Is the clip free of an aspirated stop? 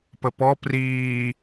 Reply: yes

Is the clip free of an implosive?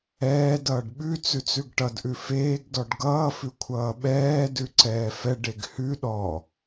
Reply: no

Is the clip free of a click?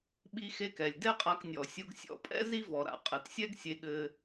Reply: yes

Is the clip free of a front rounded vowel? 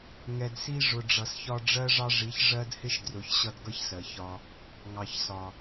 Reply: yes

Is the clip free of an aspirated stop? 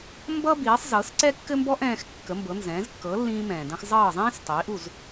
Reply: yes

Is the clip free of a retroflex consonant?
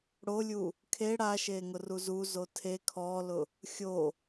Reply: no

